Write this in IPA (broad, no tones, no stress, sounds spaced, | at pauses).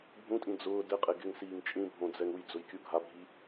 bʱ ũ tʼ ĩ d͡z ʊː d ɪ qʼ e ɡ ɪ ŋ s iː ŋ t͡ʃʼ ĩ bʱ õ d͡z ɛ ŋ u j d͡z ʊ j kʲ u ɡʱ a bʱ i